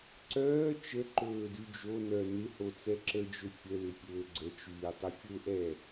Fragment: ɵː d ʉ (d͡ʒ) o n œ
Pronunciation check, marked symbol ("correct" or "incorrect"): correct